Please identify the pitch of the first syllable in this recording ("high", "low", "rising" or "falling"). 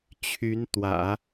rising